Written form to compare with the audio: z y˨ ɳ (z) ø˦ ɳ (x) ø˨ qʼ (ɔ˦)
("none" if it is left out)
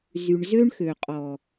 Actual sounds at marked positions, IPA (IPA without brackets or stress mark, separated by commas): z, x, ɔ˨